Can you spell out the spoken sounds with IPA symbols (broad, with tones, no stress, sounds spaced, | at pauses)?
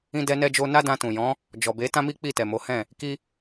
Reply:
ĩ˦ d ɛ˦ n ɛ˦ d͡ʒ o˦ n a˦ d ã˧ t ũ˨ j ɔ̃˨˦ | d͡ʒ ɔ˨ b e˨˦ t ã˦ m i˦ k͡p i˦˨ t ɛ˨ m o˨˦ h ɛ̃˦˨ | k i˦